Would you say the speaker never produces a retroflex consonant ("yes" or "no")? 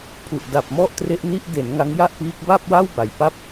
yes